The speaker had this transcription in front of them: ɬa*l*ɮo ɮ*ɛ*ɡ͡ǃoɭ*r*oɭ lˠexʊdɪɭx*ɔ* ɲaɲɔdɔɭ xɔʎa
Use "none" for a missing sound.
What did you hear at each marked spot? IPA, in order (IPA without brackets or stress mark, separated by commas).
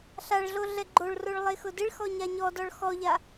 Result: ɭ, ɛ, r, ɔ